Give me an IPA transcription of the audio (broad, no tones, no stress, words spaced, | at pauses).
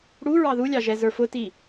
ɽu ɹɑðulʲɑ ʒɛzə˞fʊti